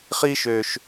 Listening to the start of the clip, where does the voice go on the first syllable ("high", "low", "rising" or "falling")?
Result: high